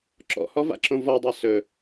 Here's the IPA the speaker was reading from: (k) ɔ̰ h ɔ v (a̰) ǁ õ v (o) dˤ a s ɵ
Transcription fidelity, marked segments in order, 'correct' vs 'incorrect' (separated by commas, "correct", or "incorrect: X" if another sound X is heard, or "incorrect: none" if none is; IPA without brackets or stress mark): incorrect: ǁ, correct, incorrect: ɔ